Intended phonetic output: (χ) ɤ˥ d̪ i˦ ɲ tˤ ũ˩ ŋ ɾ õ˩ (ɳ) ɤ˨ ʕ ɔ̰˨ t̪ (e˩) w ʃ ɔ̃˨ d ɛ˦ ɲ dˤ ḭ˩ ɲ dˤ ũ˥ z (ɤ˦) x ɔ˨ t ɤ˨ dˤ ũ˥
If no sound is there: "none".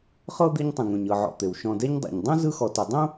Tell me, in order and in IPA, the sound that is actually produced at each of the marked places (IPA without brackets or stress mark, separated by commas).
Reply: χ, ɲ, e˩, ɯ˦